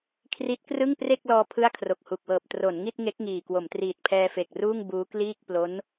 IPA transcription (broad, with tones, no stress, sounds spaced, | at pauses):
kʰ r i˦˥ t̚ k r ɯ˥˩ ŋ p r e˥˩ k̚ l ɔː˧ pʰ ɯ˥˩ a̯ kʰ r o˨˩ k̚ h u˨˩ k̚ w ɤː˨˩ p̚ t r o˩˦ n ŋ i˥˩ t̚ ŋ e˦˥ k̚ ŋ iː˨˩ k w o˩˦ m t r iː˨˩ t̚ pʰ ɛː˧ f e˨˩ k̚ r uː˥˩ ŋ b uː˦˥ k l iː˥˩ k̚ p l o˦˥ n